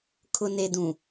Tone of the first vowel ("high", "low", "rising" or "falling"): low